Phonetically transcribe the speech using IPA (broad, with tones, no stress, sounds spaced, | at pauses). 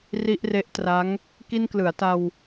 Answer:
r i˦˥ ʔ r e˦˥ ʔ t r a˦˥ ŋ | k i˧ n k l ɯ˩˦ a̯ t a˧ w